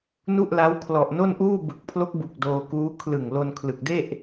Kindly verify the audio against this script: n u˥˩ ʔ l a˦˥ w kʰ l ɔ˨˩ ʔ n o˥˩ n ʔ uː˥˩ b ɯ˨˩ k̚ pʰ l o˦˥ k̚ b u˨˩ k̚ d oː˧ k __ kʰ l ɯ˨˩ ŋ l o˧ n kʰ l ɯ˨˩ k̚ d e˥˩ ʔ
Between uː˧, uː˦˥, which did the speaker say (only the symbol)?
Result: uː˦˥